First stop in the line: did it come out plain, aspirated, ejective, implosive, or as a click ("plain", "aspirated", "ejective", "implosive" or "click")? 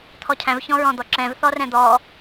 aspirated